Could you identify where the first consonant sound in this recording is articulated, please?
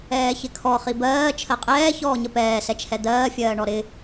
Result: palatal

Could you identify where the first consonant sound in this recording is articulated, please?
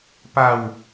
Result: labial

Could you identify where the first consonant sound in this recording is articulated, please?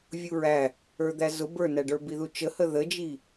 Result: labial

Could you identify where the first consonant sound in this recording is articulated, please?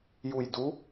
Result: palatal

